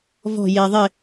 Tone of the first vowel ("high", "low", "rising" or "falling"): falling